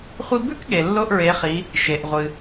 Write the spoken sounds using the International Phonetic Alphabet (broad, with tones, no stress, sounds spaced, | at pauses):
χʷ i˧ b ʉ˥ k ɠ e˩ lː o˧ ʔ ɹ e˩˧ χ i˩˧ | ʃ e˩ ʔ ʁʷ ɨ˩